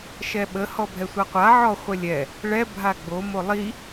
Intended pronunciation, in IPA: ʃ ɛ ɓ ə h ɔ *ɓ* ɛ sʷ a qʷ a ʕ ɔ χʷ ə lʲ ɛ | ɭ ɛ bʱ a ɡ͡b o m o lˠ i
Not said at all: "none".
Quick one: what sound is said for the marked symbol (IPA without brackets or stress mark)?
bʱ